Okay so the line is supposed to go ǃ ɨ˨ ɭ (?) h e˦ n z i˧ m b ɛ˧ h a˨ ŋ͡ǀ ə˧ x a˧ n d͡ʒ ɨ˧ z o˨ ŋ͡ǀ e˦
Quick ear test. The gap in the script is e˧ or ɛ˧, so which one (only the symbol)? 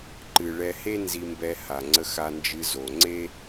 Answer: ɛ˧